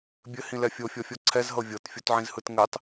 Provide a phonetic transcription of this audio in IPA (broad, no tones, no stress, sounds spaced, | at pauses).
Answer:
bʲ ɘ h ĩ l ɛ fʲ o fʲ ɔ fʲ ɔ ǀʰ ɛ z ɦ ɤ vʲ ɤ t fʲ o t ʕ ĩ z h ɯ t ŋ ɘ tˤ